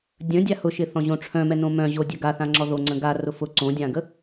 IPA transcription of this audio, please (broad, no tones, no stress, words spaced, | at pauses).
dʲə̃dʲa hʊʃɪ θɔ̃ʑõʈ͡ʂʰœ̃mɛ nõmœ̃ʑo dʲœɡaθã ŋ͡ǁɔðoŋ͡ǀə̃ ɡa rʊfʊ ǀõdʲãɡə